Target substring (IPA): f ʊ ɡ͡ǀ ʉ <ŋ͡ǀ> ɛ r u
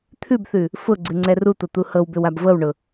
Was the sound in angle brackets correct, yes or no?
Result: yes